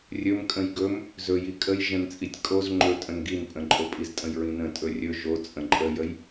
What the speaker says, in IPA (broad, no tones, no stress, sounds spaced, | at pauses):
rʲ ɵ m kʼ ə̃ j ɡ ɵ m | z ɵ j i kʼ ə j ʒ ə̃ n t͡sʼ i tʲ kʼ o z ŋ͡ǃ ɵ tʼ ə̃ n ɡ i n pʼ ə̃ ǃʼ o pʼ i z tʼ ə̃ j ɹ ĩ n ə̃ tʼ ɵ rʲ ɵ ʒ o t͡sʼ ə̃ ǃʼ ə j ə j